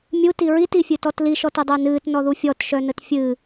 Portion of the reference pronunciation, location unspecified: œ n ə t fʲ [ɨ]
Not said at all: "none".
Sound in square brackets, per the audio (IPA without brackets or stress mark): ɨ